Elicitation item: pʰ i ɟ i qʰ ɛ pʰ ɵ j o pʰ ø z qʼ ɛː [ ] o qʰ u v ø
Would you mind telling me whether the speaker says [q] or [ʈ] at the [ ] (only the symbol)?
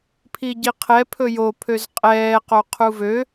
q